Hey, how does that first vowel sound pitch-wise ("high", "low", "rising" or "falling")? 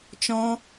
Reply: high